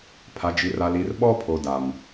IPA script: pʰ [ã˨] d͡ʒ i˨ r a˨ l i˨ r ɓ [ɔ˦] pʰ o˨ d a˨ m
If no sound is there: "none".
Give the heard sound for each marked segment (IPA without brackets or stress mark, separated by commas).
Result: a˨, ɔ˦